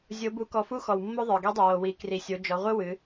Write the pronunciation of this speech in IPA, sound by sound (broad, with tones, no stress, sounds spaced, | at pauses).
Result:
zʲ o˧˥ b u˧˥ k ɔ˧ f u˥ x ɔ˩ w mː o˥ ðˤ ə˞˩ ɡ i˧˥ dˤ i˩ w o˩ w i˩˧ k r i˩ sʲ o˩˧ d͡ʒ ɔ˩˧ ʁʷ ɨ˥ w ɨ˩˧